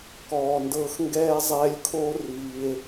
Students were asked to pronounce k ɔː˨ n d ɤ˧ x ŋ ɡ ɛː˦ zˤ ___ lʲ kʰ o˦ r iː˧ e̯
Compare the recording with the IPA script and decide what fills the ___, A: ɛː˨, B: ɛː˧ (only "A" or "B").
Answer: B